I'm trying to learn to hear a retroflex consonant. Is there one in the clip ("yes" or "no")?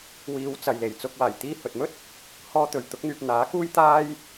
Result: no